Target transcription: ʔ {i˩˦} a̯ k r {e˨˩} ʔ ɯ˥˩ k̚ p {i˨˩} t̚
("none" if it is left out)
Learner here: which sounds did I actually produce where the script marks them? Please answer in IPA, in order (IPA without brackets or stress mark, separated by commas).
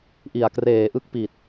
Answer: i˨˩, eː˨˩, i˨˩